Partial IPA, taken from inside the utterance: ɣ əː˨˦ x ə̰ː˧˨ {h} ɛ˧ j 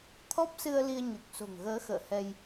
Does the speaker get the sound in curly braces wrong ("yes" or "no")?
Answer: no